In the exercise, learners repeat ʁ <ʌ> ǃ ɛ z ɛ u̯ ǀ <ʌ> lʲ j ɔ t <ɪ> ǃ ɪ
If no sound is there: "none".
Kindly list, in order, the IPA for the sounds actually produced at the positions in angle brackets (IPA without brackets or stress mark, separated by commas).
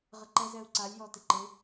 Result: ə, a, ɪ